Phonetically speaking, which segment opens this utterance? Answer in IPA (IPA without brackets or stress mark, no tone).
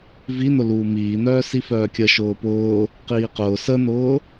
v